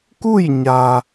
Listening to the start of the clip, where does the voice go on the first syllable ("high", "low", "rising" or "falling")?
falling